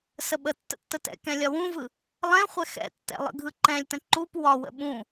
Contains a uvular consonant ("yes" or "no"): yes